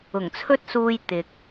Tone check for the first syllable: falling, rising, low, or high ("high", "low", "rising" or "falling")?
low